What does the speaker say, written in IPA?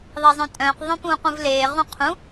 ðˤ e zˤ œ̃ tʼ œ̃ː q ðˤ œ̃ p ũː q ũ v l eː ʁ ũ qʰ ũ

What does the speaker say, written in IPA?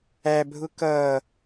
æ bʱ ʊ k ʌ

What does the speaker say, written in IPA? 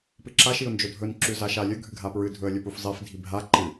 p ɨ ǁ a ʃ i ʊ̯ n d͡ʒ ɵ dʱ ɵ n ǁ ʉ z a ʃ a lʲ ɵ ɡʱ ɨ ɡʱ a p ɹ ɨ dʱ ɵ ə̯ lʲ ɵ p u f zˤ i f dʱ i bʱ a ǃ ɨ

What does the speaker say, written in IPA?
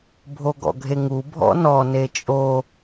bʱ o ɡ ɔ̰ ɡʱ e ŋ u bʱ ɔ̰ n ɔ n e t͡ʃʼ o

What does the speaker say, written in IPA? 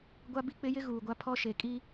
ɡʷ a˦ b i˦ k͡p ɪ˦ j ɪ˦ ɣ uː˨ ɡʷ a˦ pʰ ɔ˦ ʃ e˨ kʼ i˦

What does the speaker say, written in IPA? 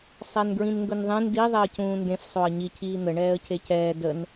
sˤ ɛ n ɡ ɹ ĩ n ŋ ɡ ɵ n ðˤ ẽ n d i ðˤ ɛ ə̯ c ũː n d ẽ f sˤ o ə̯ ɲ i cʰ iː n̪ ə ɳ ɛː ə̯ cʰ e c ɛː d ə n

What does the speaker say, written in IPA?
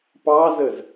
p ɑ z ə z

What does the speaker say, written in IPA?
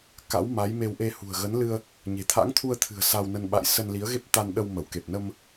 k a̰˧˥ w m a˨˦ j m e˧ w ʔ e˧ h ṳ˨˩ ə̯ ɣ ə˨˦ n l ɨ˧ ə̯ | ɲ e̤˨˩ t̪ʰ a̰˧˥ ŋ t̪ʰ u˧ ə̯ t̪ʰ ɨ̤˨˩ ə̯ s a˧ w n ə˧ n ɓ a̰˧˨ j s ə˧ n l i˨˦ ə̯ ɣ e˦˥ p̚ t̪ a˧ n ɗ ə˧ w m ə˧˩ w k e˨˩ p̚ n ə˧ m

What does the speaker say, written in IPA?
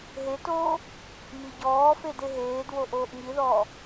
ɦ e t oː | m i ɟ ɔː f e d e ɦ eː d w o ʔ oː ʔ ŋ i ð ɔː

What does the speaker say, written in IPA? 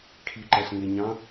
kʰ i ǃ æ ɬ ŋ e ɲ ɑ̃

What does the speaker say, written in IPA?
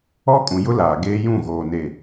ɔ˦ kʼ ũ˨ j ʊ˦ l aː˨ ɡ eː˦ j ũ˦˨ ɣ oː˨ n e˨

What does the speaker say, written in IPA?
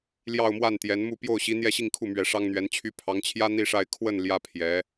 l j ɑ˥˧ ʊ̯ m w a˥˩ n t̪ j ɛ˧˥ n m u˥˧ p j o˥˩ ʊ̯ ɕ i˧˥ n̪ j ɛ˥˧ ɕ i˥˧ ŋ kʰ u˥˩ m ɥ ɛ˧˥ ʂ ɑ˥ ŋ n̪ ɥ ɛ˧˥ n t͡ɕʰ y˥ pʰ ɑ˧˥ ŋ t͡ɕʰ j ä˥ n̪ i˥ ʂ a˥˧ ɪ̯ kʰ w ə˥˩ n l j ä˥ pʰ j ɛ˧˥

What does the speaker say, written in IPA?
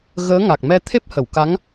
ɣ əː˧˥ ŋ a˨˩ k̚ m ɛ˧ t̪ʰ e˦˥ p̚ h ə˨˩˨ w k a˧˥ ŋ

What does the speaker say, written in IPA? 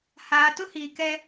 h aː˨ t ʊ˦ h iː˨ k ɛ˦

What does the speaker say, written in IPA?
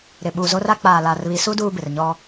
ɾ ɪ˨ ɓ u˨ z o˦ r a˦ k͡p aː˨ l a˨ r β i˨ s u˦ d uː˦ b ɪ˨ r ɲ ɔ˦

